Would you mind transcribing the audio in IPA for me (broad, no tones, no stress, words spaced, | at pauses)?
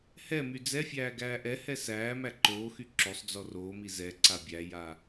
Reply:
hɛmy d͡zɛfʲæː ɡæːʔɛhɛ sæːmæ ǃoːxy ǁosˤd͡zɔ roːmi zɛ ǀabʲæja